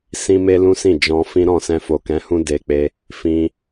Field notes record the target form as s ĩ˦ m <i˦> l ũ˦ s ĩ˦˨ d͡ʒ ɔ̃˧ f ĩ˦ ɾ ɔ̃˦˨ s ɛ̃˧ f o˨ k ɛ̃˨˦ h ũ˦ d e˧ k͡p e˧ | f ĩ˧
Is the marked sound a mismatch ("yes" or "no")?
yes